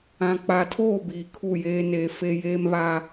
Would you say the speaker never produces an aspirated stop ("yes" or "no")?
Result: no